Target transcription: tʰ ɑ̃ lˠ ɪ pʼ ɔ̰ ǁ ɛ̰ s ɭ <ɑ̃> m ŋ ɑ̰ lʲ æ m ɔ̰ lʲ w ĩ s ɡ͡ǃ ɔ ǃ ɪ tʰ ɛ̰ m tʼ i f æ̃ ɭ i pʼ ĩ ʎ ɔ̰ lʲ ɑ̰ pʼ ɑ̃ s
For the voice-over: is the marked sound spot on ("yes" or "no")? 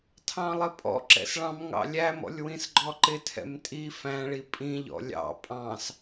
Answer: yes